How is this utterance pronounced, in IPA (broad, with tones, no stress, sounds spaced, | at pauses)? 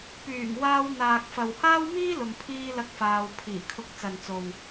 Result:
p yː˨˩ ŋ w aː˧ w n̪ aː˨ k̚ f ɐ˨ w h aː˥ w m iː˥ l ʊ˨ ŋ pʰ iː˧ l ɐ˧ k̚ f aː˨ w pʰ iː˨˩ kʰ ʊ˧ k̚ t͡s ɐ˨ n t͡s o˨ w